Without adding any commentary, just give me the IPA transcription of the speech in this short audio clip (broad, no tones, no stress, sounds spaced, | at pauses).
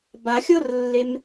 b a xʲ ɤ r lː e m